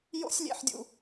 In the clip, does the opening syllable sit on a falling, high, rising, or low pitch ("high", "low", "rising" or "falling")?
high